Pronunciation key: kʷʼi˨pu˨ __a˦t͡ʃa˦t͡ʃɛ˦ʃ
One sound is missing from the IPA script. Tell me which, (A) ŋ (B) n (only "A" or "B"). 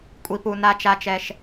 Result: B